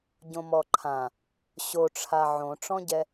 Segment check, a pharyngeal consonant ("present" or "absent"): present